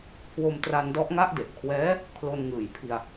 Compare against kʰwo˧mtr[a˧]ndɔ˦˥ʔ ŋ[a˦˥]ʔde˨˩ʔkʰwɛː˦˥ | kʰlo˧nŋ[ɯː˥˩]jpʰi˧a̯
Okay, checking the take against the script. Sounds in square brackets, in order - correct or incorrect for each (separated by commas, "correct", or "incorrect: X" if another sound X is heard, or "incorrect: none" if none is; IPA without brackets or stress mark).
correct, correct, incorrect: ɯː˨˩